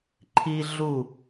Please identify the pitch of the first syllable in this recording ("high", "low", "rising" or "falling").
high